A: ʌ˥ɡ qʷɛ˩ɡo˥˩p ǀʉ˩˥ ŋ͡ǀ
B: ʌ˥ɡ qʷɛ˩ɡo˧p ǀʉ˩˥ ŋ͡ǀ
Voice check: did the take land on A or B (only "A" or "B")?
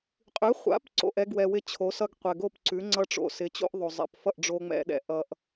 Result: A